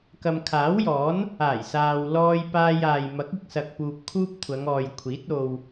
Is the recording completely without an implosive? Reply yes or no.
yes